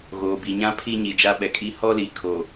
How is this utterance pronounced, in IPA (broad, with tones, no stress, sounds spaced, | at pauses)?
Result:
ɣ oː˨ b i˨ ɲ ã˦ pʰ i˦ ɲ i˨ d͡ʒ a˦ ɓ ɛ˨ kʼ iː˦ h ɔ˦ l i˨ kʰ o˨